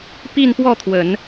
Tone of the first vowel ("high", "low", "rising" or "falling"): falling